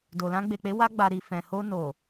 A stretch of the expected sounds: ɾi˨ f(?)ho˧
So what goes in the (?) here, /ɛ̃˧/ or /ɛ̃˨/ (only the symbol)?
ɛ̃˨